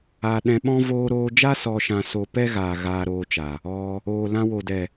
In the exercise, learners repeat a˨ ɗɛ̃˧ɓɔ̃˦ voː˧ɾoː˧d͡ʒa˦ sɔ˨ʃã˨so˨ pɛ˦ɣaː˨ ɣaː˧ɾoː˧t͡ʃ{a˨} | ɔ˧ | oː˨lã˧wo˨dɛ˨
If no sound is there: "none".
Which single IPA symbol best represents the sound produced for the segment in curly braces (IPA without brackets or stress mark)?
a˨